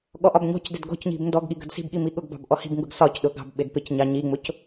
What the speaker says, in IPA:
ɠ ɔ ʔ ɒ b ɲ ɔ̤ c d ɪ d ɡ ɔ̤ c ɲ i̤ b n d ɔ ɡ ɠ i ɡ ə̤ d s i̤ b ɠ i m i ɠ ʊ ɡ b ɑ̤ b ʔ ɔ h i̤ b ŋ ɡ ʊ ɡ s ɒ c ɗ ʊ ɡ ɑ̤ b ɓ ɪ d p ɪ c ɲ ɑ ɲ i ŋ͡m ʊ c

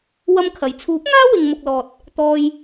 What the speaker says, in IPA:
w ɐ˥ m kʰ ɐ˨˧ j t͡sʰ uː˨˥ p̚ ŋ aː˥ w ɪ˧ ŋ m ʊ˧ k̚ l ɔː˨ t̚ | t̪ ɔː˧ j

